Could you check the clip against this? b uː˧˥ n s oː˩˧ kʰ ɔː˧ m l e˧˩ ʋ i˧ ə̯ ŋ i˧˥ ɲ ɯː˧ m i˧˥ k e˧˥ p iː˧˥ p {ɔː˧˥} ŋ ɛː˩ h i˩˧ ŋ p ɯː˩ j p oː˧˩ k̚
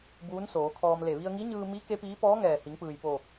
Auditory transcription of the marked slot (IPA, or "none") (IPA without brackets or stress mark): ɔː˧˥